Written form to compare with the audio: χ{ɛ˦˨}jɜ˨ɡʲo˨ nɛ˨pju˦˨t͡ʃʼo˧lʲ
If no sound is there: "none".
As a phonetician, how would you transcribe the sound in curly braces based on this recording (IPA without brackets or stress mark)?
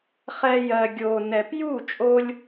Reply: ɛ˧